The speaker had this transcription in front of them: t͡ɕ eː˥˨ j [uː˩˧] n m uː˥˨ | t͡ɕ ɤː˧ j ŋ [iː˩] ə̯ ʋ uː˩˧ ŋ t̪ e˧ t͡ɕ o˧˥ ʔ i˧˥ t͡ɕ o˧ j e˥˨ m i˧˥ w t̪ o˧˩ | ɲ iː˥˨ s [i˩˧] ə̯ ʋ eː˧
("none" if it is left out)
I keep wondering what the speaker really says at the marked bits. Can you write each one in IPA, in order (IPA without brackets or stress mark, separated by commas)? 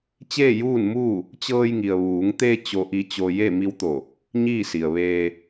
uː˥˨, i˩, i˩